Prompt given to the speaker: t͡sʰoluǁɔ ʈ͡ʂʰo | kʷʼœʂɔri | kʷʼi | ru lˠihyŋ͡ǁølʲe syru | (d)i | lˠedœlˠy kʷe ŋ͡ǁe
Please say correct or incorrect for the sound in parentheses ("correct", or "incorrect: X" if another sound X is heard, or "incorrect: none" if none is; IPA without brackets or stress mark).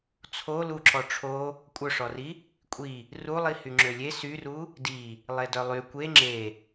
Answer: correct